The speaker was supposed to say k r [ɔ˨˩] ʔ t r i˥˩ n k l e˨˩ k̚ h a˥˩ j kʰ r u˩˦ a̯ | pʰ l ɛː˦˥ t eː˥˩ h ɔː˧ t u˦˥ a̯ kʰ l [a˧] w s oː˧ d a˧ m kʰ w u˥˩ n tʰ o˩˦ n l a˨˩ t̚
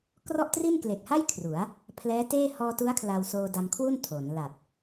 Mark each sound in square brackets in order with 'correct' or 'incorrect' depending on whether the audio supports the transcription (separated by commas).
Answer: incorrect, correct